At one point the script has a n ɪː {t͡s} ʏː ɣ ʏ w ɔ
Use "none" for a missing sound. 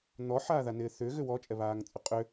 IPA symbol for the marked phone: θ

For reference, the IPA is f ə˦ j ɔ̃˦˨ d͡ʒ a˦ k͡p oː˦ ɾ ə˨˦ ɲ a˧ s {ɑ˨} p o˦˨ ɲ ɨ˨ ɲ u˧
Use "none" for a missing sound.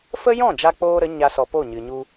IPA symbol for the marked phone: ɔ˨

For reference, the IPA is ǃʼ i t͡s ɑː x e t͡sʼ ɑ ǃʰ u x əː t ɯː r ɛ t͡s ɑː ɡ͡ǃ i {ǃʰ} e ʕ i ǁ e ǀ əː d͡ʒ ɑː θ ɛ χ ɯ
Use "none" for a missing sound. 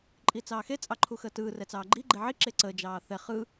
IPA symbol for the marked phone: ɡ͡ǃ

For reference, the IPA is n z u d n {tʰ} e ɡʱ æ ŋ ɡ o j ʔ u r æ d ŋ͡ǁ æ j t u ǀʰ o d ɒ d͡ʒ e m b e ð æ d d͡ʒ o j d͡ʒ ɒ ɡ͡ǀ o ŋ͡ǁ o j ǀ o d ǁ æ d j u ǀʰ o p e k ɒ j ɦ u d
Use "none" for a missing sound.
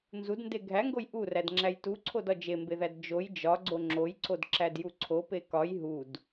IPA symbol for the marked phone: d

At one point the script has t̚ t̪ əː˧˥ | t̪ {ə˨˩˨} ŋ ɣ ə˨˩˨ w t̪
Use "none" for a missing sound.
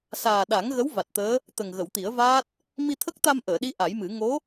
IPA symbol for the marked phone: ə˨˩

